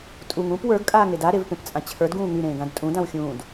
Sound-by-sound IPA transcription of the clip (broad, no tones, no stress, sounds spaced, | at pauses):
tʼ u ŋ ũ p w ə˞ ɡ kʼ aː ŋ e d a ɾ e v p ẽ p t͡sʼ ã t͡ɕʰ ə˞ d ɡ ũː ŋ y ɾ ẽː ɡ ã d tʼ ũ d ã w xʲ ũː d